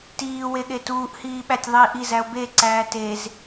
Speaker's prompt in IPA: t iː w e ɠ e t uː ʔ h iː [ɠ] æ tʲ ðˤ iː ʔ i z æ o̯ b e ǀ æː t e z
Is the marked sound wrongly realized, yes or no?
yes